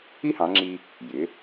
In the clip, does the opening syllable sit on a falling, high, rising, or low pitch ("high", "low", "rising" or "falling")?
high